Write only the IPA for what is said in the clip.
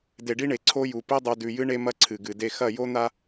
d e˨ ɖ i˦ ɳ e˨ ǀʰ o˦ j u˨ p i˦ dˤ ʉ˨ d ʉ˨ j ɨ˦ ɳ e˦ m ɐ˦ ǀʰ ɨ˨ ɡ ɨ˨ d e˦ x ɐ˦˨ j o˦ n̪ a˦

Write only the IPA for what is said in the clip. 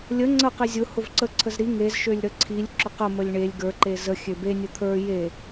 lʲ ə ŋ͡ǀ ə q i zʲ ʊ h ʊ v ǀ ə ǀʰ ə z ɾ i ŋ e z ʃ ø lʲ ɾ ə ǀʰ i lʲ ǁ ʊ q ə m ə lʲ ɳ e lʲ ɡ ə˞ ǃ e z ə xʲ ø b e nʲ ʊ t̪ʰ ə˞ j e

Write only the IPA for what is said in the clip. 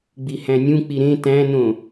ɡ͡b i h æ̃ nʲ ũ k͡p i ɾ ẽ t æ̃ n õ

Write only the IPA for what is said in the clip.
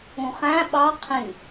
ũ χ æ̃ ɓ ɑ qʰ ĩ

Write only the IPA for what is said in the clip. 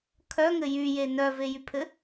kʰ œ ŋ ɘ j y j e n œ v e j y pʰ ɘ

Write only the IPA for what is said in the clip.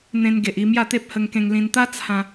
n̪ ẽ˧ n ɡ e˨ ʔ i˧ m j a˥˧ t̪ e˦ p̚ h ə˧ ŋ k ẽ˧ ŋ l ĩ˧ n t̪ a˦ t͡sʰ ã˧

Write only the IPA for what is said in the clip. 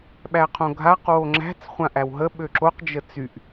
ɓ æ qʰ õ ɡʱ a q w o ŋ͡ǁ æ̤ t͡s χʷ ã ʔ æ w ɦ ə ɓ ø ǁ o q d͡ʒ ə t͡s y ʔ

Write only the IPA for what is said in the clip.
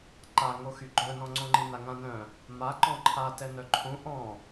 ǃ a ŋ o x y ɡ͡ǃ œ n ɔ̃ ŋ͡ǀ õ ŋ͡ǃ i n a ŋ ã n œ̃ | m a ǃ ɔ̃ ǃʰ a t ɛ n œ ǃʰ ũ ʔ ɔ̃

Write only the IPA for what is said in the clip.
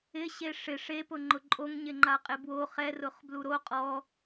ɪ ɕ e ʂ ɪ ʂ e p ʊ ŋ͡ǃ ʊ ǃʼ o ŋ ɲ ɪ ŋ͡ǃ a qʼ ɪ b w o χ ɛ r ʊ χ b l u ɾ o qʼ ɔ

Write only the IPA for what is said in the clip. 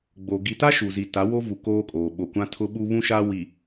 ɡ͡b o˨ ɡ i˨ t a˦ ʃ u˨ z i˨ t a˨˦ w o˦ v u˨ k oː˦ kʼ oː˨ ɓ o˨ kʷ ã˦ tʰ ʊ˦ ɓ u˦ β ũ˦ ʃ a˦ w i˨

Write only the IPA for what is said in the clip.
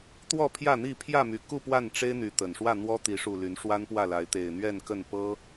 t̪ w ɔ˥˨ pʰ j ä˥˨ n̪ i˥˨ pʰ j ä˥˨ m y˨˩ k u˥˨ p w a˥˨ n ʈ͡ʂ e˦ ɪ̯ n̪ y˨˦ t̪ ə˨˩ n ʂ w ä˥˨ n̪ w ɔ˦ t̪ i˨˦ ʂ u˨˩ l y˨˦ n ʂ w a˦ n p w ä˥˨ l a˨˦ ɪ̯ t̪ e˨˩ ɪ̯ n̪ ɥ ɛ˥˨ n k ə˥˨ n p ɤ˦

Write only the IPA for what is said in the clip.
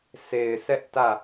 sʰ e˨ ɪ̯ sʰ ɛ˦ ʔ t ä˦˨

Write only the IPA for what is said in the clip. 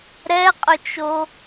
ɾ ɛ qʼ ø t͡ʃ o

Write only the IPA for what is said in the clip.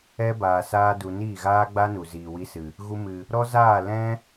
ɛ˦ b aː˨ s aː˦ d u˧ n iː˦˨ ɣ aː˦ ɡ͡b a˦ n u˨ z iː˨ w i˧ s ɨ˨ | ɣ u˧ m ɨ˨ | ɾ ɔ˦ z aː˦˨ l ɛ̃˦

